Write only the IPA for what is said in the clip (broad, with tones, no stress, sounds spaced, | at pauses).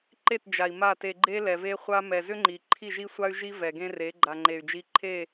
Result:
ǃ e˦˨ t d͡ʒ a˨ i̯ m a˦˨ t e˧ ɡ͡ǃ e˦ l ɛ˨ v e˦ χʷ a˦ m ɛ˨ z ʏ˦ ŋ͡ǃ i˨ ǃʰ i˦˨ ʒ i˦ sʷ a˦ y̯ ʒ i˦ v ɛ˨ ɡ ẽ˦ r e˨˦ ɡ͡ǃ a˨ ŋ͡ǃ e˨ y̯ d͡ʒ i˧ ǃʰ e˦˨